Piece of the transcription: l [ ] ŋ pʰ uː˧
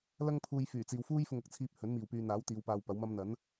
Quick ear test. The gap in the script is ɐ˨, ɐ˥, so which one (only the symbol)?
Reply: ɐ˥